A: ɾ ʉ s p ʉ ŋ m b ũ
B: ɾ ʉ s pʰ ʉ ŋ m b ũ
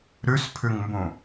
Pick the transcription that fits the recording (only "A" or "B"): B